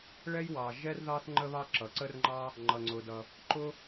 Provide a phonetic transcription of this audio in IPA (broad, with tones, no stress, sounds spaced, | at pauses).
ɭ ɛ˥ j w ɑ˩ ʒ ɛ˥ r ð ɑ˥ θ ŋ͡ǃ ə˥ β ɑ˥ ǁ ʌ˩ ǀ ə˥ r ŋ͡ǃ ɑ˥ | ŋ͡ǃ ʌ˩ ŋ͡ǀ ʊ˩ d ʌ˩ | ǃ ʊ˥